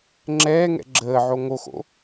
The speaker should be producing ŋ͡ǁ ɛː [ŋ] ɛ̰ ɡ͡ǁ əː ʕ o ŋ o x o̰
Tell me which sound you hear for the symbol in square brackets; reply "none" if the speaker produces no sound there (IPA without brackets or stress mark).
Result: ŋ